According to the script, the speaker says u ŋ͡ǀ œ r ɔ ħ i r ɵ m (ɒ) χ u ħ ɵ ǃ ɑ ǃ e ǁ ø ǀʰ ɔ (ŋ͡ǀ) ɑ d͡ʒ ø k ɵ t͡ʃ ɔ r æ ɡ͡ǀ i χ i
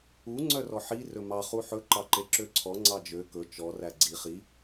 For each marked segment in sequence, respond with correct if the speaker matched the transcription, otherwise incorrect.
incorrect: ɑ, correct

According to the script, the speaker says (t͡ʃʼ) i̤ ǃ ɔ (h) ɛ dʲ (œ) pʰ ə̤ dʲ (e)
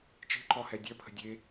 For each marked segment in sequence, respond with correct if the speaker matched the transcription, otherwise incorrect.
incorrect: t͡ʃ, correct, correct, correct

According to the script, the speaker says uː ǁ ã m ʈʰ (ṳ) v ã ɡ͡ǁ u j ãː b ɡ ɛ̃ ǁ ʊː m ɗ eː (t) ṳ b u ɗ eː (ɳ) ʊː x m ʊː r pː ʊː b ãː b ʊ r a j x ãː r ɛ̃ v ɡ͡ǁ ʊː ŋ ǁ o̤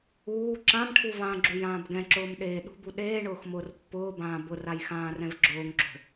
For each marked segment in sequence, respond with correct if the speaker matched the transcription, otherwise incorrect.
incorrect: u, incorrect: ɗ, correct

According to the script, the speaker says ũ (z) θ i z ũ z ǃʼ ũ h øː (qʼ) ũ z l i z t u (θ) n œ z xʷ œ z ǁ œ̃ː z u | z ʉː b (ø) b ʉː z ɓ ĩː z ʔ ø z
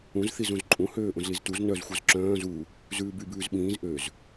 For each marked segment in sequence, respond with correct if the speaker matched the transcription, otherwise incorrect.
correct, incorrect: ʔ, incorrect: z, incorrect: y

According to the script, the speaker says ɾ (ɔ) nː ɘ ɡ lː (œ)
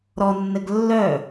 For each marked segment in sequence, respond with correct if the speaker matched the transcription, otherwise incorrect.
correct, correct

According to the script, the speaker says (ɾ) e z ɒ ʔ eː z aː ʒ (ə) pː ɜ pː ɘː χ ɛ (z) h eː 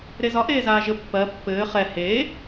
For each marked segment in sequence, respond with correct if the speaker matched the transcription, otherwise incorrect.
correct, correct, incorrect: none

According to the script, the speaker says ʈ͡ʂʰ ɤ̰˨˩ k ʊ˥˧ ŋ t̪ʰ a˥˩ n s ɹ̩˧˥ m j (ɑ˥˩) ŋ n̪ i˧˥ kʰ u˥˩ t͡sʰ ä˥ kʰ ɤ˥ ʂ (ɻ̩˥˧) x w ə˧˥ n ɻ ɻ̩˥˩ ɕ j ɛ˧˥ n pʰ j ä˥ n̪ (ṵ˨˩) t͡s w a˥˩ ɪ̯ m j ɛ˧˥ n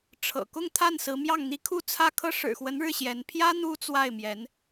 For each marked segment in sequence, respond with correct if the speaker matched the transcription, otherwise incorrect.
correct, incorrect: ɻ̩˨˩, incorrect: u˥

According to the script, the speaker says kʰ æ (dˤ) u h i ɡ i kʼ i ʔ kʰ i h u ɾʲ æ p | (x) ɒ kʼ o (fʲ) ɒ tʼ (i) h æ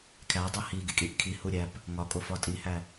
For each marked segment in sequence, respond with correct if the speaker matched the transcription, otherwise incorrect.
correct, incorrect: ŋ, incorrect: f, correct

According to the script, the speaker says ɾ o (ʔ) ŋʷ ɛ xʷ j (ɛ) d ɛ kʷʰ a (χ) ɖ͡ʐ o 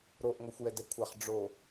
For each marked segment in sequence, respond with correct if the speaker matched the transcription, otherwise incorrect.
correct, correct, correct

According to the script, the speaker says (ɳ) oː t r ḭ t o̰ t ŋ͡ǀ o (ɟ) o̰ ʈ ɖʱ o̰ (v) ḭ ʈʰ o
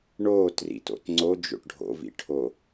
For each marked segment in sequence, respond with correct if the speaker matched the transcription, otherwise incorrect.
correct, incorrect: d͡ʒ, correct

